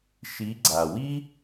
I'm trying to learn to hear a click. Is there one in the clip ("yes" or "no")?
yes